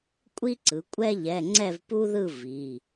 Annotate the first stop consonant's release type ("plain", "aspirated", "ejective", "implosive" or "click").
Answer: ejective